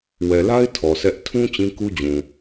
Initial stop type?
aspirated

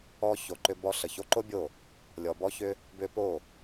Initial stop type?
click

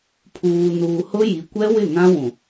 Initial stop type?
aspirated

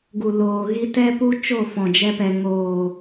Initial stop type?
plain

